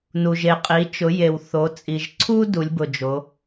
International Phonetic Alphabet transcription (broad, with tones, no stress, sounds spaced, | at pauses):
n u˩ ʒ e˩ qʼ i˩˧ t͡ʃ ʊ˩˧ j e˩ w θ o˩˧ t͡sʼ i˩ ʒ ǀʰ u˥ d u˩˧ lʲ b ʊ˩ d͡ʒ o˩˧